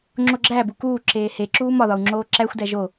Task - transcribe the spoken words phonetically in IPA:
ŋ͡ǁ o ɡ͡ǁ æ b u k uː ǁ eː h e ǁ uː m ɒ ð ɒ u̯ ŋ͡ǁ oː ǁ æ xʷ d æ ʒ o

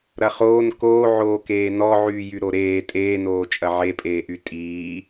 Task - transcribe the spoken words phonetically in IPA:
ɾ ɐ χ oː n k oː ʕ oː k eː n ɔ ʕ yː j y ɾ o ɾ eː tʼ eː n oː t͡ʃʼ ɐ ʕ e pʼ eː ʔ y tʼ iː

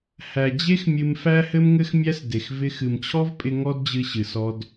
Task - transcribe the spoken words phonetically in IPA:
h æ˨ d͡ʑ e˦ x mʲ ɨ˧ m f æ˦ h ɘ˦ m ŋ ɘ˦ x mʲ æ˦ s d e˨ x v ɪ˧ x ɨ˨ m t͡ɕʰ ɔ˦ v pʼ ɪ˧ ŋ ɔ˦ d d͡ʑ ɨ˧ ɕ ɨ˨ s ɔ˧ d

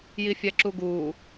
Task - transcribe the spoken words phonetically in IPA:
j i fʲ æ ǁ u ɡ uː

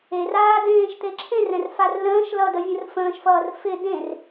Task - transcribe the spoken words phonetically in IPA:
e r aː d ẽː ʃ t̪ e ǁʰ ẽ r ɛ̃ r f a r l ə̃ː ʃ l ʌ d ə vʲ ə̃ r f ə̃ː ʃ f ʌː r f ɪ d ẽ r

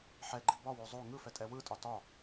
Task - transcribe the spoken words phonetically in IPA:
ħ ɛ ɡ͡ǃ i b ɒ w o zˤ o ŋ ɯ f ɛ tʼ ɛ w ɯ tʼ ɒ t ɒ

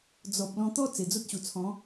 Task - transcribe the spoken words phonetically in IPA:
d͡z ɔ˨ p̚ l ɔ̃˧ t̪ ɔ˦ t͡s e˨˩ d͡z o˦ t̚ ɕ u˨˩ t͡sʰ ɔ̃˨˦

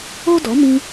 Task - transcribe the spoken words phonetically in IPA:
o˦ d ɔ˨˦ m ĩ˧

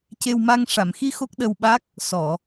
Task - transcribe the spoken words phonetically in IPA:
c e˧ w m a˧ ŋ ʂ a˨˩˨ m x i˧ x o˦˥ k̚ ɗ ə˧ w ɓ a˦˥ k̚ | s ɔ˨˩˨

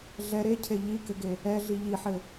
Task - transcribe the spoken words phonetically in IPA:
ɮ ɛ ɾ e cʰ e ʎ i k ɘ ɡ e | ɛ ɮ i ʎ i ħ ɘ

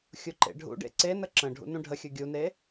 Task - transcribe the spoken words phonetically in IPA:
xʲ u ǃ ḛ ɖʱ ṵ ɖ ḛ ǀ e n ə ǁ ə̃ ɖʱ ṵ n ũ ɖʱ ə xʲ ɯ ɡʲ u n e

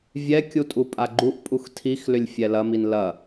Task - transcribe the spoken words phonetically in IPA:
vʲ ɛ kʲ u tʼ u pʼ a ɡ͡ǃ u ʔ pʼ u x tʰ i x l ʏ lʲ fʲ ɛ l ɐ m i n l ɐ

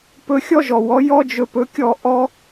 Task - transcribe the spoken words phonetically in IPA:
p ɵ˧ xʲ ɔ˥ ʒ ɔ˩ w ɔ˩˥ j ɔ˥ d͡ʒ ɵ˧ p ɵ˩˥ kʲ ɔ˥˩ ʔ ɔ˥

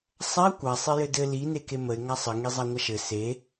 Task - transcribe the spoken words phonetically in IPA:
sˤ a kʷ a sˤ e j ɘ d ɘ l i n e k e m ə ɪ̯ ŋ a sˤ ə ŋ i zˤ a ŋʷ a ʃ ɘ s e

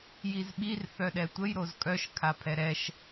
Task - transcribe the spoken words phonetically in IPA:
j i z ɓ i r θ œ ɗ ɛ tʷ ə j ɾ o z kʼ œ ʃ kʰ a pʰ ɛ ɾ ɛ ʃ

